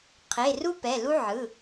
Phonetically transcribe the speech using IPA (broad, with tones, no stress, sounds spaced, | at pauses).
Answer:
qʰ e˩˧˩ r u˦ p ɛ˩˧˩ l u˦ ʕ ɯ˩˧˩